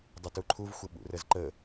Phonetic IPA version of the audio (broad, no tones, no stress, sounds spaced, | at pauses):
dˤ ə t u ǃʰ u v xʷ ə ɓ ṵ r ə z ǃ ə